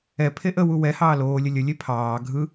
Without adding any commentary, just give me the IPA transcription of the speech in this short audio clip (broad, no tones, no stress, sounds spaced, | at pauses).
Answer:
ɛ pʰ e ʔ ə w u w ɛ h ɑː l oː lʲ ə lʲ ə lʲ e pʰ ɑː ɡʱ ɯ